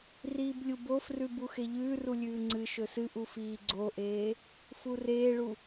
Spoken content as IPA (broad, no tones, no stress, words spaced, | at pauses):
riːblʲubofrʉb uxeʎʉːru lʲʉːŋ͡ǀɨʃɵ sɨʔu fiːɡ͡ǀoʔeː | fureːɭu